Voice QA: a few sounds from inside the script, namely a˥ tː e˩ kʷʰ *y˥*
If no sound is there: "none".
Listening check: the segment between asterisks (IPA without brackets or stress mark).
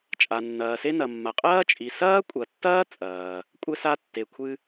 ɨ˥